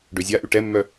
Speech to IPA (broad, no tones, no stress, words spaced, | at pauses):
ɖøzʲaʔy ʈɛmːœ